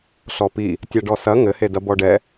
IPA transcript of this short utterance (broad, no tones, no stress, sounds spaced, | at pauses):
ɬ ɔ p i | tʲ a ɖ ɔ s ɐ ŋ ɘ h e d ɐ b ɔ ɖ ɛ